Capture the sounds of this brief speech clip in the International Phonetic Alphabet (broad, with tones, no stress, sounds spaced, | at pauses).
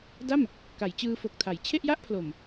d a˥˩ m | k a˩˦ j t͡ɕ ɯː˧ f o˨˩ k̚ tʰ a˩˦ j t͡ɕʰ e˥˩ ʔ j a˥˩ ʔ pʰ l o˨˩ m